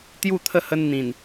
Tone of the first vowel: falling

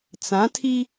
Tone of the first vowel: rising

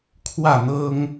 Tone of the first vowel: falling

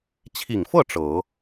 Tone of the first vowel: low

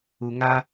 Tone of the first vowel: low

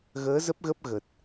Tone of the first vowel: rising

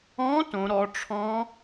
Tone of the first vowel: rising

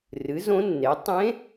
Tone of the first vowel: rising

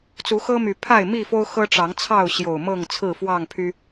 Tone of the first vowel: rising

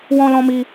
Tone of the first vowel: high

